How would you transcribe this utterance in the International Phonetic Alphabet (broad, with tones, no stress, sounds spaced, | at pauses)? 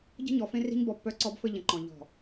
ɟ ə̤˦ ɲ ɔ˨ f ẽ˦ r i̤˦ ɲ b ɔ˦ pː œ˦ ǀ ɔ˦ b f ɘ˦ ʎ ə̃˨ ǃ ɔ̃˨ ʎ ɔ̤˨